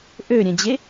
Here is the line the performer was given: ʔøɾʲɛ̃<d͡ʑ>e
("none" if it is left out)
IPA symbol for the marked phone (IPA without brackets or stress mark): d͡ʑ